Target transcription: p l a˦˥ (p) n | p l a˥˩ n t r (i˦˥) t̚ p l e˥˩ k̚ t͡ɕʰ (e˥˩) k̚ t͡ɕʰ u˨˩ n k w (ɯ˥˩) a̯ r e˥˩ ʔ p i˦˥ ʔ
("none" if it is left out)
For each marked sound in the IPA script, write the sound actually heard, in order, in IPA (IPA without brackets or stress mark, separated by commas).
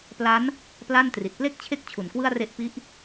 none, i˨˩, e˥˩, ɯ˥˩